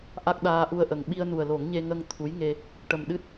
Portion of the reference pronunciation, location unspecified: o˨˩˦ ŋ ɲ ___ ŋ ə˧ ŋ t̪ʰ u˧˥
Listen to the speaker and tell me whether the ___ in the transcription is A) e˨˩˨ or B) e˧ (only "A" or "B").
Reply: B